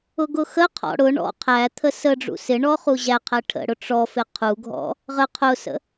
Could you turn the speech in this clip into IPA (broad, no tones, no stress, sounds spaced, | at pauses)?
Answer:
ʊ ɡ ʊ x ə qʰ ɔ̰ ɽ ʊ ɳ ɔ̰ qʰ æ t̪ʰ ə s ə ɖ͡ʐ ṵ s ɪ ɳ ɔ χ u ʑ æ qʰ æ ʈʰ ə̰ ɽ ʊ ʈ͡ʂ ɔ f ɪ qʰ u ɡʱ ɔ̰ | ʁ ə qʰ ʊ s ə̰